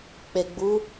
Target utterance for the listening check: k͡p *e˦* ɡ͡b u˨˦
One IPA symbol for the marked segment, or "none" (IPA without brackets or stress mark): e˨